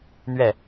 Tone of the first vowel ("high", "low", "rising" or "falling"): falling